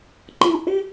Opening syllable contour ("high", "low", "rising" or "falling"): low